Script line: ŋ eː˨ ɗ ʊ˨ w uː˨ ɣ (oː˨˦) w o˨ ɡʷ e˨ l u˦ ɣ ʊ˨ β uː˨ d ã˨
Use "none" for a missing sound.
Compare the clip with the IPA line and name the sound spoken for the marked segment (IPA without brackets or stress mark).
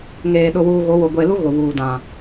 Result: o˨˦